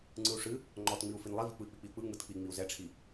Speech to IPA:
ŋ͡ǀɯu̯ʂɨ | ŋ͡ǃɔtŋ͡miu̯ finlˠivi k͡pɯi̯k͡pik͡piu̯k͡pɯ ŋ͡mɯtk͡pi ŋ͡miu̯zɛʈ͡ʂʰi

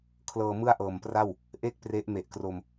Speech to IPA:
kʰlɤː˧mɯ˥˩a̯ʔɤː˨˩mpra˥˩w | ʔe˥˩k̚ pre˦˥ʔme˨˩ʔkro˧m

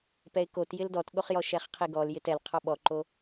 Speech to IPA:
pɛɪ̯kot jɪldɔtɠoχjɔ ʃɛχqʰiɡɔl jɪtɛl qʰɔɓɔǃo

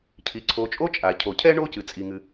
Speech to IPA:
cʰi˩ ǀʰo˨t͡ʃʼo˥ t͡ʃʼa˩ cʰo˩cʰɛ˥ ɳo˥cɨ˩t͡sʼi˩ŋɨ˩

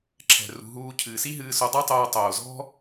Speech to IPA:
ǁʰɛ̤˨ rṳ˨ ɦuː˧ cʰɨː˨si˦ ɦɨː˧so˧dˤu˦tˤoː˧ tˤoː˨zɔ̤˦

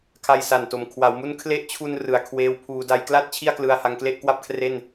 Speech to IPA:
kʰa˧jsa˨˩nto˨˩m kʰwa˩˦wmu˦˥n kʰle˦˥ʔt͡ɕʰu˧n rɯ˨˩a̯kʰweː˦˥wpʰuː˧ da˧jkla˥˩t̚ t͡ɕʰi˥˩a̯klɯ˧a̯ ha˧ŋkle˥˩ʔkwa˥˩p̚kʰre˥˩n

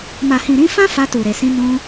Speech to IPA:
ma˨hĩ˨ ɾĩ˧ fã˦ fa˧tu˨ɾe˨sĩ˧ nũ˧

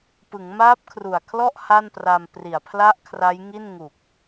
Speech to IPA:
pɯ˩˦ŋmaː˦˥p̚kʰru˨˩a̯kʰlɔ˥˩ʔ ha˥˩npra˧m pri˨˩a̯pʰla˥˩ʔkʰra˦˥jŋi˥˩n ŋu˨˩k̚

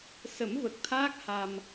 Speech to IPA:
sə˨˩˦mvə˨˩k̚t̪ʰaː˦˥k̚ ha˧m

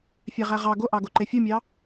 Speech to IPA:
fʲæʁæʁɑ ɡoʔɑɡo ǃefʲumʲɑ

